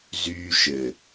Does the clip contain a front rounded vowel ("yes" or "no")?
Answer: yes